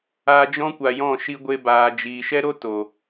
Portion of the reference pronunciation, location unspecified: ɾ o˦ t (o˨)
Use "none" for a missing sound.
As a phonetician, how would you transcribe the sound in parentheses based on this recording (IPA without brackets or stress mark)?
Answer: o˨